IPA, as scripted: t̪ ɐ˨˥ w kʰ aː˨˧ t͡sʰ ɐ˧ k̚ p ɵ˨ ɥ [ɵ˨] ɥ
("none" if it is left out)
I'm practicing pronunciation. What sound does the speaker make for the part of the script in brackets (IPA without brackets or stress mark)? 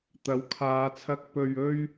ɵ˧